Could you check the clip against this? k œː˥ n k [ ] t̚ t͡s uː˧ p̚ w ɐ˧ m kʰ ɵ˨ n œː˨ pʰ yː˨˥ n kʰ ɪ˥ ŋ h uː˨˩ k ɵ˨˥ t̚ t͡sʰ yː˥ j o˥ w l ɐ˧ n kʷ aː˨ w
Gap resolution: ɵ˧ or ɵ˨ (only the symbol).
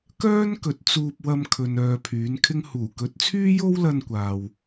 ɵ˨